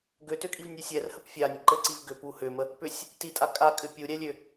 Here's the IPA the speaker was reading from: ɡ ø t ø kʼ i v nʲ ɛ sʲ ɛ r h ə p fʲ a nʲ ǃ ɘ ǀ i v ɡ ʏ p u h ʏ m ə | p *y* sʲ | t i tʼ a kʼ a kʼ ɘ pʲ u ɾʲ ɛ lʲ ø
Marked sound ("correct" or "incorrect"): incorrect